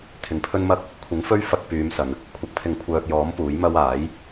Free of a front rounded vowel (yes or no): no